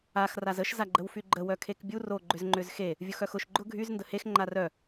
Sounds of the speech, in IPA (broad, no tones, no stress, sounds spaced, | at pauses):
a x r a z ə ʃ z a ɡ͡ǃ ə w f y ɡ͡ǃ ə w œ kʰ e k bʲ u r o ɡ͡ǃ ʏ z ŋ͡ǃ ʏ z x e | vʲ ʊ x œ x ʊ ʃ ɡ͡ǃ ʊ ɡʱ y z n d ə h e x ŋ͡ǃ a r œ